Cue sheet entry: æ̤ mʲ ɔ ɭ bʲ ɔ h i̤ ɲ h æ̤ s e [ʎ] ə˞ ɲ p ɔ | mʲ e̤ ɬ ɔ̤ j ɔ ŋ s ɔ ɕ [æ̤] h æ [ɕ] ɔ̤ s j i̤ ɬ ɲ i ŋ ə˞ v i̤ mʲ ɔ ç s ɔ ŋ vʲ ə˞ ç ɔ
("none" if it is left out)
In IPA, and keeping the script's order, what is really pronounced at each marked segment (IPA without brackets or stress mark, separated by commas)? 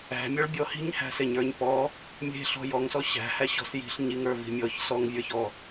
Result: ɲ, æ̤, ɕ